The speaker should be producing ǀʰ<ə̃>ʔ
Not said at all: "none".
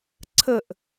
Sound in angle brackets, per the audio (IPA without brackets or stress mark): ə